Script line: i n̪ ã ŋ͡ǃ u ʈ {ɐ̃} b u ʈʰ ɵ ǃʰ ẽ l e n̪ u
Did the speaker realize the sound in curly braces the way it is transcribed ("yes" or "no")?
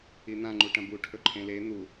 yes